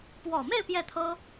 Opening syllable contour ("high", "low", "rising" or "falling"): low